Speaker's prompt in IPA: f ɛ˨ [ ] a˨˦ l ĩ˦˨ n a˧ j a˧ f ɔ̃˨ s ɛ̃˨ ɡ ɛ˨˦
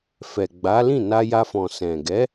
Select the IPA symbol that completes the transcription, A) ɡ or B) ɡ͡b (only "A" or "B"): B